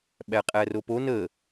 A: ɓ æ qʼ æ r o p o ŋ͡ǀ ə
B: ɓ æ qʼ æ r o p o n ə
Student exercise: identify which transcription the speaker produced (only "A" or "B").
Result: B